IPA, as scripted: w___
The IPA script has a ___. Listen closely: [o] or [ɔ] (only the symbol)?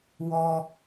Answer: ɔ